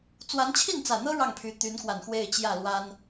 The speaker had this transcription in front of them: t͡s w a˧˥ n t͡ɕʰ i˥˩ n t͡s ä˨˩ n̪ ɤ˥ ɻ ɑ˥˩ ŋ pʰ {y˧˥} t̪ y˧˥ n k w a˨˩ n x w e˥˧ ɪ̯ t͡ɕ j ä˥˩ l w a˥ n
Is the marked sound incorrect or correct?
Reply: correct